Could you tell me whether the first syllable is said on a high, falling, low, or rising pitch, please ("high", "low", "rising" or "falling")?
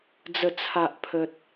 low